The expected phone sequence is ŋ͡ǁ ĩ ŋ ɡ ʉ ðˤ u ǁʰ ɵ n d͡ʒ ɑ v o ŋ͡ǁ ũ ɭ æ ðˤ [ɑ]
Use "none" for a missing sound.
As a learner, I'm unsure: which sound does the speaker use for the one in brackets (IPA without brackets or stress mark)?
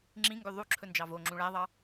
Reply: ɑ